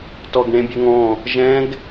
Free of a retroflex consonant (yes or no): no